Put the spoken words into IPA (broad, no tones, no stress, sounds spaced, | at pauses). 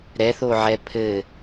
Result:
ɾ ɛ θ o ʕ ɛ pʰ ɘ